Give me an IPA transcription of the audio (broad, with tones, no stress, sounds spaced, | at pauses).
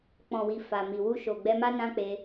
k͡p ɔ̃˨ w i˨ f a˨ m i˨ w u˧ ʃ o˨ ɡ͡b ɛ˧ m a˦ n ã˦ k͡p e˧